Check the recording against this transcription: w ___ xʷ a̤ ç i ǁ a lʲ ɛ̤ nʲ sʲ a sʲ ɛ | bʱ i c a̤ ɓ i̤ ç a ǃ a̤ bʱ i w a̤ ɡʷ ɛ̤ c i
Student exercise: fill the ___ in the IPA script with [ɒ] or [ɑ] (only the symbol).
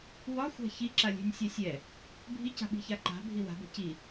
ɒ